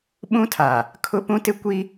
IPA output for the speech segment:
ɓ ũ˦ tʰ a˨ | kʰ ʊ˦ p ũ˦ t ɪ˦ kʷ i˦

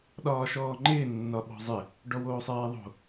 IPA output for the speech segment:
ɗ ɒː ʃ ɔː ŋ͡ǃ ɪː nː ɒ ɓ ɔ̤ zˤ ɪ | ɖ ɔ w oː sˤ ɛː ðˤ o̤

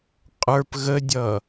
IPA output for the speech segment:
qʼ ə˞ p ɣ ə dʲ ʌ

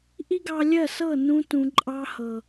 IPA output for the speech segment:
ʔ i˦ ɡ ɑ˧ lʲ ɜ˦˨ s ɤ˦˨ n ũ˧ t ũ˨ ǃʼ ɑ˧ h ɤ˨

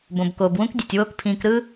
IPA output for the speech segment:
b õ˩ b k oː˩ b w ũ˥ k dʲ e˩ tʲ w oː˦ k pʰ ĩː˨ k ɾ ɯ˥

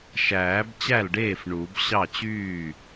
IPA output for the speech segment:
ʃ æː˨˩˦ b t͡ɕ æ˥˩ l ɖ eː˥˩ f ɳ u˨˩˦ b ɕ ɑ˥˩ t͡ɕ yː˥˩

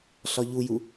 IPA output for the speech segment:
ɬ ɒ ʎ u j u

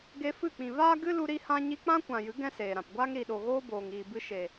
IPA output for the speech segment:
ɡ e˧ f ɨ˦˨ k͡p ĩ˨ v aː˦ ɡ ɨ˦ l u˧ ɾ i˧ h ã˧ ɲ i˧ k͡p ã˦ kʷ ã˨ j ɨ˨˦ ɡ ɛ̃˧ s eː˨ ɾ ã˨ p ɡʷ aː˦ ŋ ɾ i˨ ɗ o˨ ɣ oː˦ b oː˨ ŋ iː˨ b ɨ˧ ʃ e˨

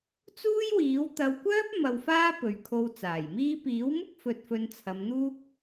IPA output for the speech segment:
t͡s uː˥ j w iː˨˥ w t̪ ɐ˨˧ w kʷ œː˥ p̚ m ɐ˧ w f aː˥ p ɵ˨˧ ɥ kʰ o˧ w t͡s aː˨˩ j m iː˧ p iː˨˥ w m ʊ˥ k̚ f ɵ˧ t̚ f ɵ˧ n t͡sʰ ɐ˨˧ m n̪ uː˥ k̚

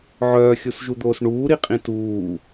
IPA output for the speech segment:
ʕ œː xʲ u s ʒ u d̪ oː s ɳ uː ɾ i qʼ ĩ t uː

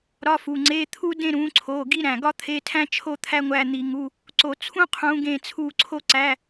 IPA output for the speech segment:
ɾ ɒ˧˥˧ f u˩˧˩ ŋ͡ǀ e˧˥˧ t̪ʰ u˥ d ẽ˦˨ ɾ ũ˨˦ ǀʰ o˩˧˩ ɡ i˥ ɾ æ̃˩˧˩ ɡ ɒ˥ t̪ʰ e˧˥˧ tʰ æ̃˥ t͡ʃʰ o˥ t̪ʰ æ˥ ŋʷ æ˦˨ n̪ i˨˩˦ ŋ u˧˥˧ | ǀ o˨˩˦ t͡sʰ ũ˥ qʰ ũ˨˦ ɡ ẽ˦˨ t͡sʰ u˦˨ ǀʰ o˥ ǀ æ˧˥˧

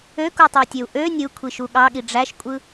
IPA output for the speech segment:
ø k u tˤ ɑ tʲ ø u̯ ʔ ø nʲ ɯ kʷʰ i ʃ u ɠ ɑ ɠ i ɖ͡ʐ æ ʃ kʷʼ ɯ

